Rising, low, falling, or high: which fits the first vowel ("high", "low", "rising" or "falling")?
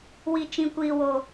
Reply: low